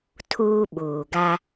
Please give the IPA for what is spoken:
tʰ uː˦ ɓ uː˨ ɡ a˦

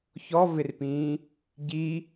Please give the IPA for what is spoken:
ç ɔ v ɪ r p ĩː | ɟ i

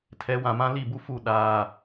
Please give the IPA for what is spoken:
tʰ ɛ˨˦ w ã˨ m ã˦ l i˦˨ b u˦ f u˦˨ ɗ aː˨

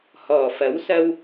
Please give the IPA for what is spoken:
h ɔː˨˩ f ɐ˨˥ w s ɐ˧ w

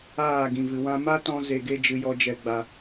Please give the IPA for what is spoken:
aː˦˨ ɡ ĩ˨ v ɨ˨ w ã˧ m a˦ t ɔ̃˧ z e˨ ɡ e˧ d͡ʒ ɨ˨ j ɔ˧ d͡ʒ ɛ˨ ɡ͡b a˨

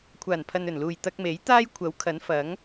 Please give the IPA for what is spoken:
kʷʰ aː˨˩ n pʰ ɐ˨ n ɵ˨˩ n l uː˨˩ j t̪ ɐ˧ k̚ m e˨˥ j t̪ aː˥ j kʷʰ ɐ˨˥ w kʰ ɐ˨˥ n f ɐ˨˥ ŋ

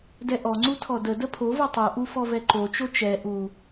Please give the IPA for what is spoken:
d ɛ ʔ ɔ ŋ͡ǀ u tʰ ɔ d ə d ə pʰ o v o tˤ u ʔ u f ɔ v ɛ ǃ o t͡ʃ o t͡ʃ ɛ ʔ u

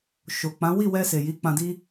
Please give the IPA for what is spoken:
ʃ o˨ k͡p ã˨˦ w i˦˨ w ɛ˧ s e˨ j i˨˦ k͡p ã˧ d i˦

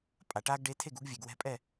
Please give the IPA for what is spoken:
pʼ a˩˧ ʈ aː˦ ɡ ɖ e˨˥ tʰ e˥˩ ɡ u˨˥ ɡ vʲ e˩˧ ɡ w ɛ̤˦ pʼ ɛ˥˩

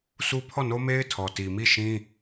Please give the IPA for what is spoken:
sʰ u˦ pʰ ɔ˦˨ n o˦ m e˦ ɪ̯ tʰ ɔ˨ t i˨ m i˦˨ ʃ ĩ˦

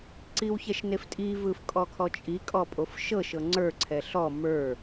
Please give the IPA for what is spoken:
ǀ i w ç ɛ ʃ n e f tʼ i v ɯ f kʼ ɔ kʰ ɔ t͡ʃʼ i kʼ ɔ pʼ o f ʃ ɤ ʃ ɤ ŋ͡ǀ ə˞ ǀʰ ɛ ɬ ɔ m ə˞

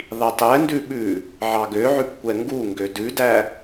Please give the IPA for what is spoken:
ðˤ i tˤ ɛ n d ʉ ɓ ʉ | ʕ ɑ ɡ ø ʕ ʉ p kʷ ɛ ŋ ɡ u ŋ ɡ ø d ʉ d æ

